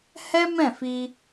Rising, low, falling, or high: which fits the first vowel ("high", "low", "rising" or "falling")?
high